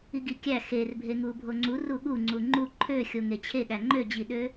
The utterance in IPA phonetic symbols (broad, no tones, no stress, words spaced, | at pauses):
iɡikʲæ xerbʱeŋu bʱoŋ͡ǀu ruɠuŋ͡ǀu ŋ͡ǃu ǃʰø xʲoŋet͡ɕʰeɠæ ŋ͡ǃød͡ʑiɗø